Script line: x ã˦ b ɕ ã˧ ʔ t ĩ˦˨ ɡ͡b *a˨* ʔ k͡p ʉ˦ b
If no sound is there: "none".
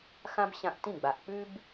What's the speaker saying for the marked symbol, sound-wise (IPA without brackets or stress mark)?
a˨